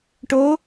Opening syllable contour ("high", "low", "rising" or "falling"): rising